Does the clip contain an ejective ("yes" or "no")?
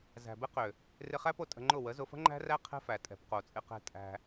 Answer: yes